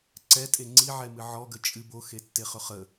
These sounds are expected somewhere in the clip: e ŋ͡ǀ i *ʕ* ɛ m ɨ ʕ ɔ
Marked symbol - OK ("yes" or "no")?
yes